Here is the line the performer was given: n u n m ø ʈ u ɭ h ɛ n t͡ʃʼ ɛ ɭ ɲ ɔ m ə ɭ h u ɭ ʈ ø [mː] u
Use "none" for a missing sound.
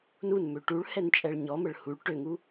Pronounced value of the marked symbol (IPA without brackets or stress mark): ŋ